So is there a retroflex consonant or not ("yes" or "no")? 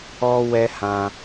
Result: no